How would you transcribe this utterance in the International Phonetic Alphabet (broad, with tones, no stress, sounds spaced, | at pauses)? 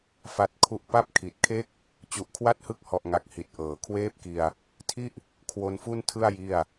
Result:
f a˦˥ t̚ kʰ u˥˩ ʔ p a˥˩ p̚ kʰ i˨˩ t̚ kʰ e˥˩ k̚ | t͡ɕ u˨˩ ʔ kʰ w a˥˩ t̚ h ɯ˦˥ k̚ h ɔ˨˩ ʔ ŋ a˨˩ k̚ h i˨˩ t̚ ʔ ɤː˩˦ kʰ w eː˥˩ p̚ k i˧ a̯ | tʰ i˥˩ ʔ | kʰ w o˧ n f u˥˩ n tʰ ɯ˥˩ a̯ j i˥˩ a̯